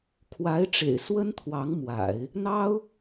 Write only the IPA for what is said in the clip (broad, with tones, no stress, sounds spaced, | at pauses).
kʰ w a˧˥ ɪ̯ ʈ͡ʂ ḛ˨˩ ɪ̯ s w ə˥ n t̪ʰ w ɑ˧˥ ŋ m w a̰˨˩˦ ɪ̯ | n̪ ɑ˥ ʊ̯